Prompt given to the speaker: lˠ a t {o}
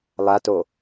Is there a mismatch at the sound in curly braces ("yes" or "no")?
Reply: no